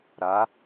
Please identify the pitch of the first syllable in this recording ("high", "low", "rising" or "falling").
rising